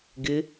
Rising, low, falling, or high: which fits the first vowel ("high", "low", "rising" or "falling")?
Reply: rising